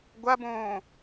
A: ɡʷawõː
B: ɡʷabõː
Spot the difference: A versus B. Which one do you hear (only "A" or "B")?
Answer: B